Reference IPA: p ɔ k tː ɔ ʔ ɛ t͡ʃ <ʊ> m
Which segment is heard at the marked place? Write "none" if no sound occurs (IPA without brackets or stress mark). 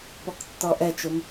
ʊ